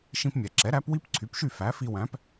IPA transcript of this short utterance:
ʃĩ˧pmʲɛ˩ǁɛ˩˥ ɾæ˩˥pwi˥pǀʰy˩˥pʃy˥˩ fæ˩˥fi˧wæ̃˩˥p

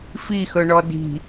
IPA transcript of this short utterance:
fixɵɳɔ di̤

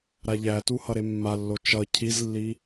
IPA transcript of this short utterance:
ɾaʎætu hʌɾemːalːo t͡ʃʌ cʰizlːi

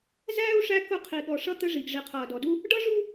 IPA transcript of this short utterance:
zæː˦u̯ ʂæ˦ kʊ˦˨ qʰi˨ɠɔ˨ʂʌ˦ t̪ə˦ʐi˨ɡ ʐi˨qʰʌː˨dɔ˨du˦ | ɖʌ˦ʐu˦

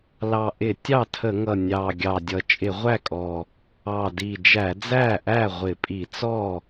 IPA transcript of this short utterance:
lɑ˨˩ʔɪ˧˩˧ tʲɑ˥˩tʰə˧˩˧ŋʌ˨˩ nʲɑ˨˩ ɡʲɑ˨˩dʲʌ˨˩ t͡ʃʼɪ˧˩˧ʁʷæ˥˩kʼɔ˨˩ | ɑ˨˩di˨˩ d͡ʒæ˧˩˧d͡zæ˥˩ʔæ˥˩ ʁʷɪ˧˩˧pʼi˧˩˧ t͡sɔ˥˩

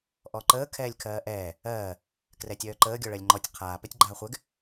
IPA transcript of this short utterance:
ʔɔǃəː kʰɛːlʲkʰɜːʔɛː | ɜː | krɛtʲœːǃəː ɡʲɔɭɜlʲŋ͡ǃɔtʲ qʰaː pɛtʲɡ͡ǃaːχʷɛɡ

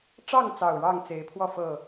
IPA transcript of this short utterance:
ʈ͡ʂɑ˥˨ŋt͡sɑ˨˩ʊ̯ ɻɑ˥˨ŋ t͡se˨˦ɪ̯pʰwɔ˥˨ fɤ˥˨

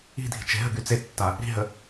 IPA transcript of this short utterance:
i̤dʱi̤ t͡ʃe̤ɦəɡy t͡setːa | ɾi̤ɦə

